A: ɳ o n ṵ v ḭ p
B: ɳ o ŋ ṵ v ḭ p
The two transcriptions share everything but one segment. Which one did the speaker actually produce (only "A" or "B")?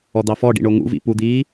B